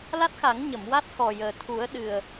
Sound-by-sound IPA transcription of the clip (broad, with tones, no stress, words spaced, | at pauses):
la˦˥t̚xa˨˩˦ŋɲə˨˩˨m wa˦˥t̚xɔ˨˩jəː˨˩t̪ʰu˨˩˦ə̯ ɗɨ˨˩ə̯